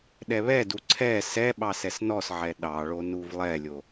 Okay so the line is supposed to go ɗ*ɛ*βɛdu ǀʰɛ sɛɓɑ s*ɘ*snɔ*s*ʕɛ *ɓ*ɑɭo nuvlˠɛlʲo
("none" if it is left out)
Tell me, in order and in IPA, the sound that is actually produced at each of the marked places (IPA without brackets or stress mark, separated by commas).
ɛ, ɛ, s, ɗ